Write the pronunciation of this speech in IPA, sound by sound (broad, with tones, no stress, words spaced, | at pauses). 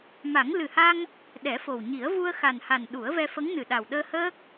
ma˨˩˦ŋ lɨ˨˩ha˧ŋ | ɗɛ˨˩˦fo˨˩wɲi˨˩˦ə̯ vu˧ə̯xa˨˩nha˨˩n ɗu˨˩˦ə̯vɛ˧fə˧˥ŋ nɨ˨˩ɗa˨˩wɗəː˧ həː˦˥k̚